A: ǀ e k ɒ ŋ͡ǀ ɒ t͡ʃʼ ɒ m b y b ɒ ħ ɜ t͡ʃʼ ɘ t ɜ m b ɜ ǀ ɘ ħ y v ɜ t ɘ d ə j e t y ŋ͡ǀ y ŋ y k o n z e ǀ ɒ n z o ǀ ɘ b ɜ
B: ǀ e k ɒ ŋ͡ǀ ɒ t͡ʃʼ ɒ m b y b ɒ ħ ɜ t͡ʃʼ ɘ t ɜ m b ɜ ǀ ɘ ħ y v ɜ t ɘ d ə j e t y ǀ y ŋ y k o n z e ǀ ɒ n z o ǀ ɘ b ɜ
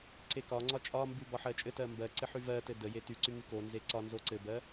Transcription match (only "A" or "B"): B